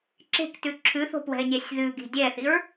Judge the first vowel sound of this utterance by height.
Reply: mid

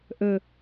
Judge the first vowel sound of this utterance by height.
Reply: mid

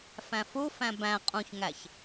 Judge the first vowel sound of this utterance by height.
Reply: low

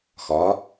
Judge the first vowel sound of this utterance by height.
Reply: low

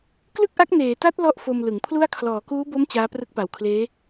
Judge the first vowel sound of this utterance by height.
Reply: high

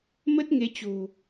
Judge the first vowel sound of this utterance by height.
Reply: mid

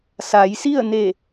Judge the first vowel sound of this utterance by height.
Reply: low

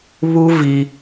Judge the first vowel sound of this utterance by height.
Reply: high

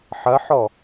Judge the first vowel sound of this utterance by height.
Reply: low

